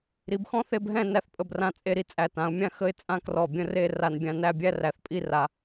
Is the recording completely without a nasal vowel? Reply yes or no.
no